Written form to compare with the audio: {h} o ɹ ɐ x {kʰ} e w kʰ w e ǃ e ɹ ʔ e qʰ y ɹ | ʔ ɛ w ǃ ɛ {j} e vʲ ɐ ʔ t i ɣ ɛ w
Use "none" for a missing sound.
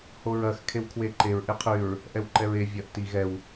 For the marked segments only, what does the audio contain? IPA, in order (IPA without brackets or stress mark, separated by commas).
h, kʰ, ɹ